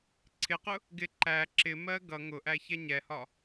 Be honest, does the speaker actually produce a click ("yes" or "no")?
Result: yes